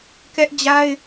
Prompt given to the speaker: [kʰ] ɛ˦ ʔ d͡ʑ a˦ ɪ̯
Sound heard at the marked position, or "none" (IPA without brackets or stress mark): k